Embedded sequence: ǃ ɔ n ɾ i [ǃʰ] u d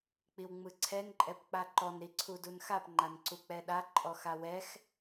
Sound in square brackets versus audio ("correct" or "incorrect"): incorrect